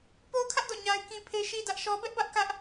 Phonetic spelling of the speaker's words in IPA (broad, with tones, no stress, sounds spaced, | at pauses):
p o˦ ʊ̯ kʰ ä˦ ʔ d ɔ̰˦˨ ɲ a˦ ɪ̯ k ĩ˦ pʰ e˦ ʃ i˦ d ä˦ ʔ ʃ ɔ˦ b ɛ˦ ʔ b ä˦ ʔ k ä˦ ʔ